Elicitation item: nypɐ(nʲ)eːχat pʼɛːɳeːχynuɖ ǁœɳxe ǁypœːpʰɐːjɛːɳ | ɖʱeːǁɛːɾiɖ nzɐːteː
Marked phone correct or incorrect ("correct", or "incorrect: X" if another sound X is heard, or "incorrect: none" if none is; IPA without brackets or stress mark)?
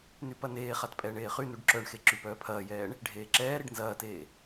incorrect: n